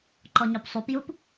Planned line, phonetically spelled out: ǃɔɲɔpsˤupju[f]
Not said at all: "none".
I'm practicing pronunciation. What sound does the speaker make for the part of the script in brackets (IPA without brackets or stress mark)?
p